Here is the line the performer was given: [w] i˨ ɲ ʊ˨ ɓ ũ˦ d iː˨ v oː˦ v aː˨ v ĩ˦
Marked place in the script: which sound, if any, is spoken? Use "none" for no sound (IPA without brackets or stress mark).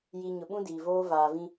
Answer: j